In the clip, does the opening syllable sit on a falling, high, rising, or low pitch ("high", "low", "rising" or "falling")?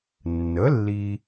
rising